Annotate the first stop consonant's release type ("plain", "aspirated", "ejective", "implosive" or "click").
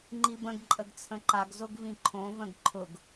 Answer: click